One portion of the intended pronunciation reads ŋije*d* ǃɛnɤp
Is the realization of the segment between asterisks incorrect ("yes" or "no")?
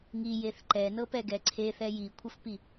yes